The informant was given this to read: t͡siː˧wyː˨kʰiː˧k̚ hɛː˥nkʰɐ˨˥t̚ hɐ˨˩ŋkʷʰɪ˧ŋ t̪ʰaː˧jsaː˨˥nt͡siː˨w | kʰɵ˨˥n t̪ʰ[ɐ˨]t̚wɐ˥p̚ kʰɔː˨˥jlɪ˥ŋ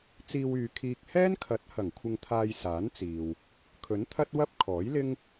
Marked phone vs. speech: incorrect: ɐ˥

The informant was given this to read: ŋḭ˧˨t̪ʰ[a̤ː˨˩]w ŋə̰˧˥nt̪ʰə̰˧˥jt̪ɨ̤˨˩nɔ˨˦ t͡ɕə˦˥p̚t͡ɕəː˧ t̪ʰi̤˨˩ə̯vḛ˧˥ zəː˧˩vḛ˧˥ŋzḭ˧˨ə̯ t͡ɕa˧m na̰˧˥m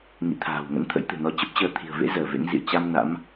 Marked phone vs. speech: correct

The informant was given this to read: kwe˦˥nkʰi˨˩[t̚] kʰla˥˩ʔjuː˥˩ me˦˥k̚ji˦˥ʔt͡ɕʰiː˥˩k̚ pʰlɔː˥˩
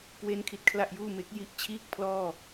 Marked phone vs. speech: correct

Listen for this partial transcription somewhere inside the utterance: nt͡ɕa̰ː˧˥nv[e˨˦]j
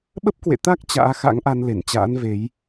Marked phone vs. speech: correct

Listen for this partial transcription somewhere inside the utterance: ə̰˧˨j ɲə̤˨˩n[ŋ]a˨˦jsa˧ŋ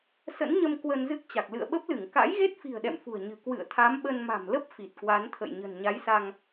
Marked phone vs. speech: incorrect: ɲ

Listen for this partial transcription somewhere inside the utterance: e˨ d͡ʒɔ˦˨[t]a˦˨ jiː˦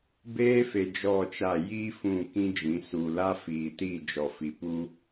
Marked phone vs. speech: incorrect: t͡ʃ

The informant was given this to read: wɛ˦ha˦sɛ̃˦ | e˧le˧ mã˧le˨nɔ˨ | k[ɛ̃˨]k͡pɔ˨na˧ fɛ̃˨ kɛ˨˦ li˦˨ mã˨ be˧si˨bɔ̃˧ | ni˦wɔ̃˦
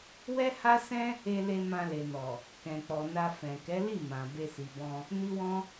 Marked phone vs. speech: correct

